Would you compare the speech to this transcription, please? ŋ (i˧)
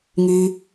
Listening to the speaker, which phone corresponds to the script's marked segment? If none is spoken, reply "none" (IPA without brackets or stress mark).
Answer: y˧